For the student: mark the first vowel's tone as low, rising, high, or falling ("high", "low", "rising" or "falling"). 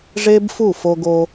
high